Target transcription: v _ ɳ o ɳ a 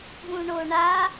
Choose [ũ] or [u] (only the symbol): ũ